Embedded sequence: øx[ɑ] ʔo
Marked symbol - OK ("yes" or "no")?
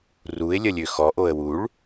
no